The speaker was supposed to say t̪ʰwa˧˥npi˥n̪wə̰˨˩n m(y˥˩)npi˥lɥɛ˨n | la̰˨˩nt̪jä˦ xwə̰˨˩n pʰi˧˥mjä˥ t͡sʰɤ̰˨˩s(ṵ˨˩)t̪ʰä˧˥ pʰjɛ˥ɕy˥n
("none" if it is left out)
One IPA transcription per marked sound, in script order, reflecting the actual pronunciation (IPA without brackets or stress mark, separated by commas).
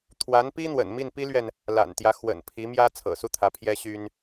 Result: i˥˩, u˥˩